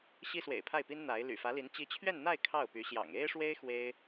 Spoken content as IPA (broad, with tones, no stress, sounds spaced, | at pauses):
ɕ i˥ s w ḛ˨˩ ɪ̯ pʰ a˥˩ ɪ̯ p i˥ n n̪ a˧˥ ɪ̯ l y̰˨˩ f ä˧˥ l i˧˥ n t͡ɕ i˧˥ t͡ɕʰ ɥ ɛ˥˧ n n̪ a˥˧ ɪ̯ kʰ ɑ˥˩ ʊ̯ p y˧˥ ɕ j ɑ̰˨˩ ŋ e˥ ɪ̯ ʂ w e˥ ɪ̯ x w e˥ ɪ̯